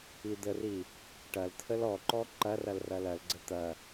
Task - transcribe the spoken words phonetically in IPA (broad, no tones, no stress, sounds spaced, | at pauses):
i d̪ ə r i | ʈ ɐ l t̪ʰ ə l ɔ ǃ ɔ ǃ ɐ r ɐ l r ɐ l ɐ l ɡ͡ǀ ə t̪ ɐ